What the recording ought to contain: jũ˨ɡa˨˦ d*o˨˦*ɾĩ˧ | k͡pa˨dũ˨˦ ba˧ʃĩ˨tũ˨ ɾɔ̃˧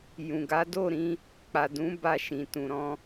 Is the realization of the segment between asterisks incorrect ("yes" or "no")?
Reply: yes